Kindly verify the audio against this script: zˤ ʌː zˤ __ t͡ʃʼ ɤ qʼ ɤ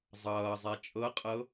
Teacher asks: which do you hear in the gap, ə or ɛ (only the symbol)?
ɛ